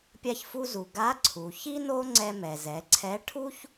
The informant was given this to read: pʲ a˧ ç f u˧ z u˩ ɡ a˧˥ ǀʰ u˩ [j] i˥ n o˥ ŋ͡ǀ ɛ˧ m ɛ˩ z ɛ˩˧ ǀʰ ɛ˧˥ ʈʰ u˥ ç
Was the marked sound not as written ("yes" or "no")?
yes